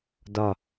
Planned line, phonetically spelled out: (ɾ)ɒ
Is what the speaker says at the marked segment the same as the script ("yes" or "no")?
no